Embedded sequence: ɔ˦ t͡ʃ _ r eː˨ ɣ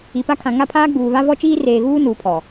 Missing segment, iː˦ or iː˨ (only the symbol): iː˦